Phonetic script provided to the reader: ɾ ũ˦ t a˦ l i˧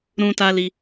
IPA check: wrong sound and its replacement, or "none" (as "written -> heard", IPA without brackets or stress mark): none